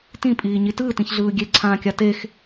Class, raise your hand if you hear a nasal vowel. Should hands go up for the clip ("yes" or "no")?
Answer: yes